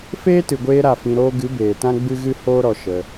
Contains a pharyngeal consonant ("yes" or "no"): no